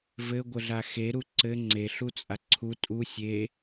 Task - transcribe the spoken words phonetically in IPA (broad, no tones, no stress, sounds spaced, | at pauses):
v ɘ ɡʷ ə ɮ a x e ɾ u ǀ ɘ ŋ͡ǀ e ɬ u t͡sʼ a ǀʰ u tʼ u sʲ e